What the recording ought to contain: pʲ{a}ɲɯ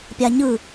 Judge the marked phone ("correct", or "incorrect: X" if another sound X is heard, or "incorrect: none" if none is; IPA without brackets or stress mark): correct